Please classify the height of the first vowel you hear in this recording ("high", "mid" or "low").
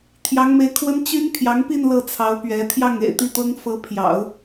low